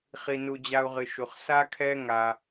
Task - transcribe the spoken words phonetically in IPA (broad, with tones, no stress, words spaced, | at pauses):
χi˧nu˧ d͡ʑa˦u̯ʁɨ˧ʃu˧χ sa˦kʰɛ˦ ŋa˧